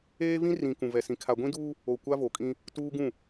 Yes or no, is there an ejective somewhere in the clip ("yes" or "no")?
yes